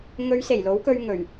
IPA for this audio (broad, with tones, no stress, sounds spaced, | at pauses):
ŋ ɵ˨˧ ɥ s e˨˩ j l o˨˥ w k ɵ˧ ɥ ŋ ɵ˨˩ ɥ